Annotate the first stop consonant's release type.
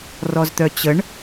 plain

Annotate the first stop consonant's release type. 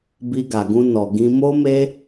plain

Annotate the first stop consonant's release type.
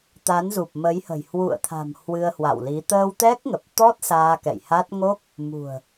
plain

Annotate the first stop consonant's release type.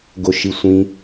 plain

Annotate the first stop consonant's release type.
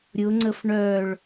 click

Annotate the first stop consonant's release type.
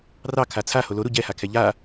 aspirated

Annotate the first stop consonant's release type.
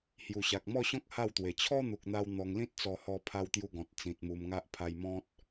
plain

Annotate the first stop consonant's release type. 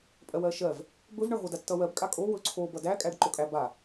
ejective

